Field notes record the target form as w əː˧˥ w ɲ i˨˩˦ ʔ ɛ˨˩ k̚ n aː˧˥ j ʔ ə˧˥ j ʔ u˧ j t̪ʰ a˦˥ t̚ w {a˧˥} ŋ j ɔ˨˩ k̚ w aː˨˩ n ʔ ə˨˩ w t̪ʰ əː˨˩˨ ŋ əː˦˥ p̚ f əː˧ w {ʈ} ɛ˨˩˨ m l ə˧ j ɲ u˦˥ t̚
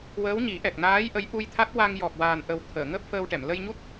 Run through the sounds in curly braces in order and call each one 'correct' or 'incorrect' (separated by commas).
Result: incorrect, correct